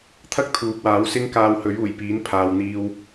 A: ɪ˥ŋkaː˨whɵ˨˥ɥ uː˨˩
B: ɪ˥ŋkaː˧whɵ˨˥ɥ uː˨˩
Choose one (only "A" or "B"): B